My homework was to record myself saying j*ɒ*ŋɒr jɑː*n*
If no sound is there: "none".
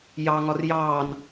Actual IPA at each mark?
ɑ, n

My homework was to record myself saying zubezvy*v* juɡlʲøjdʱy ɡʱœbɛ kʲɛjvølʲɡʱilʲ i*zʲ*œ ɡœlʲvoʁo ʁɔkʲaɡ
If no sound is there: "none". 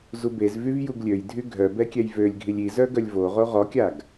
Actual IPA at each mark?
v, z

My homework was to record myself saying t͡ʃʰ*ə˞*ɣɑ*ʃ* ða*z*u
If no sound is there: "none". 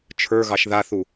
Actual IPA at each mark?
ə˞, ʃ, θ

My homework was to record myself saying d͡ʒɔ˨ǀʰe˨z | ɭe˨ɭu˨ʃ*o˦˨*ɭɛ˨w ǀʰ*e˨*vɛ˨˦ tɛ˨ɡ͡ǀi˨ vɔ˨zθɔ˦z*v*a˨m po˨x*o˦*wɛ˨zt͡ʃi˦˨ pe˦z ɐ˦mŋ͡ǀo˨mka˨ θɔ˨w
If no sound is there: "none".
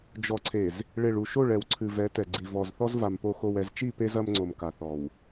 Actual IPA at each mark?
o˦˨, ɨ˨, v, o˨

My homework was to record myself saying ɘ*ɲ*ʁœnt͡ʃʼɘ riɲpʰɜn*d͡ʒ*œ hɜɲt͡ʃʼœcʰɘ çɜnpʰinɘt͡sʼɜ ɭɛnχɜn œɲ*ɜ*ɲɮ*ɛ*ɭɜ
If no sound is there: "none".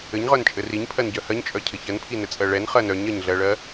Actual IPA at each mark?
ɲ, ɟ, ɜ, ɜ

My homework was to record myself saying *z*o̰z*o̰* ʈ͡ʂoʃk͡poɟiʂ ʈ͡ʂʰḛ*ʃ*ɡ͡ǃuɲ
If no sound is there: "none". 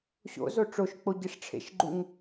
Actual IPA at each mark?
ɕ, o, ʃ

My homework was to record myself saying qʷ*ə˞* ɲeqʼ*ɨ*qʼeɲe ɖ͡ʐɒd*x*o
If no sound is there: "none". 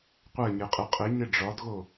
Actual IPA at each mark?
ɜ, ɨ, ɣ

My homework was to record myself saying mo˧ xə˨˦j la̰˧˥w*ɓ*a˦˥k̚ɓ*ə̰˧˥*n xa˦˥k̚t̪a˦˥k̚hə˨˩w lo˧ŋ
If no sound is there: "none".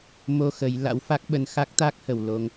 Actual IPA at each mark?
f, ə˧

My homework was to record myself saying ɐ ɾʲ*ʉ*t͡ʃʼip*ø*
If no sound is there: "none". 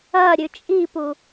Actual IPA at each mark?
ʉ, u

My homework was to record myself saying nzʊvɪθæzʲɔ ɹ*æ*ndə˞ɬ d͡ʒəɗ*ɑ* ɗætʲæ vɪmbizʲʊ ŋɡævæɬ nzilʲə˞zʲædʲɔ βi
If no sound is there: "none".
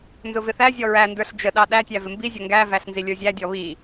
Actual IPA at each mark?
æ, ɑ

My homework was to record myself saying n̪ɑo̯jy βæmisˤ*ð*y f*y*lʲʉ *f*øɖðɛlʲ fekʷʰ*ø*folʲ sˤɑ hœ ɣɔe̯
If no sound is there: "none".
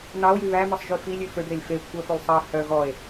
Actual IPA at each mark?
ʒ, i, f, œ

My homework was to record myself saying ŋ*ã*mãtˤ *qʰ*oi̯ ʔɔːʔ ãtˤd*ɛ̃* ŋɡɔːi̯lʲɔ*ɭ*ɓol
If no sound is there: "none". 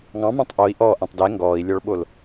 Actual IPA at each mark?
ɑ̃, ʔ, ɛ, ɭ

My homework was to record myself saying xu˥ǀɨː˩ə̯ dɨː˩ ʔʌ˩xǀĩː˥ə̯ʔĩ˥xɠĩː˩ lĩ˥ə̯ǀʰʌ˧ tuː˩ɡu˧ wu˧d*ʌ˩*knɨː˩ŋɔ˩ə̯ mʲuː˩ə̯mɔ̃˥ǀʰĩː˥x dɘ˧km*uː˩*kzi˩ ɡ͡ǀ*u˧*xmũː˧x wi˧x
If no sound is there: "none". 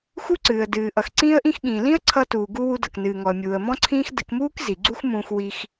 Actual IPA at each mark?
ʌ˩, uː˥, u˥

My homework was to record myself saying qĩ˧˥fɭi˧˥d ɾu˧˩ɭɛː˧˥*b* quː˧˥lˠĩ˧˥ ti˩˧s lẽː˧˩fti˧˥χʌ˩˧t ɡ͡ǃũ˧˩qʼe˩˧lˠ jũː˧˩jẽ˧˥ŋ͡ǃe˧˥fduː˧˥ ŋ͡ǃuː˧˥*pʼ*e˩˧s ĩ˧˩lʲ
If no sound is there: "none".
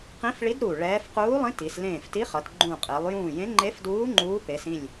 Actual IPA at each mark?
f, p

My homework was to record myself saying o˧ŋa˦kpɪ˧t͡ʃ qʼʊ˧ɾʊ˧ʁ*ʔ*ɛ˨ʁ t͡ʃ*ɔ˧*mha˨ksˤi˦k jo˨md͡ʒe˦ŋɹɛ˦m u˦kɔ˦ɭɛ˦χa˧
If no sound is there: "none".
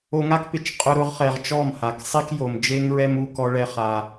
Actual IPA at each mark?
χ, ɔ˦˨

